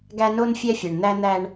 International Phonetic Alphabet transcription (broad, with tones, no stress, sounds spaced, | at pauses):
ɡ æ˦ n o˦ n fʲ ɛ˦ fʲ ɛ˨ ɳ n̪ æ˦ n̪ æ˦ ɳ